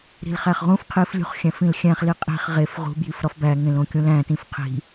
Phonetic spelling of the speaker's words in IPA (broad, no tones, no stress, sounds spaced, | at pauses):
ɾ i̤ l χ æ χ ʁ ũ f qʰ i f lʲ ṳ χ xʲ æ̃ f ĩ l xʲ æ̃ χ l i qʼ i̤ χ ʁ e f ʁ ṳ b j i f ɾ ɒ f b æ ŋ ẽ l õ kʲ ũ l æ̃ t ĩ f qʰ i̤